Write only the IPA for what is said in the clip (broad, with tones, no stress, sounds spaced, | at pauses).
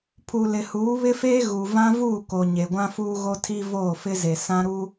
pʰ u˨ l ɪ˨ h uː˨˦ β ɪ˦ f eː˦ ɣ u˨ v ã˦ v uː˦˨ k o˨ ɲ e˨ ɡʷ ã˦ f uː˦ ɣ o˦ tʰ i˦ v oː˦˨ f ɪ˦ z e˨ s ã˦ ɾ u˦